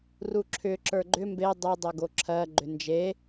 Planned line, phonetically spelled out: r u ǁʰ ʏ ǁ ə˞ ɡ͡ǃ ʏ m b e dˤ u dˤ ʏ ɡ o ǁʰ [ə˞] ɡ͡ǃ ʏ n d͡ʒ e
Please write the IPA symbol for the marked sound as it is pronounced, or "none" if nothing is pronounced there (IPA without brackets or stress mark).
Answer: ɜ